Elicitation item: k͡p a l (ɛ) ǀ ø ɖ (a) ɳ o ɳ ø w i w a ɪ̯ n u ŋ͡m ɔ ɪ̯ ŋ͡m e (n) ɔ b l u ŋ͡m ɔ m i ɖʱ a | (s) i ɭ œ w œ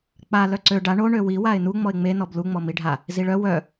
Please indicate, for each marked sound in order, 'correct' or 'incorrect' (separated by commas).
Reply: incorrect, correct, correct, incorrect